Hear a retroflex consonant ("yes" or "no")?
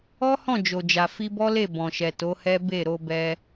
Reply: no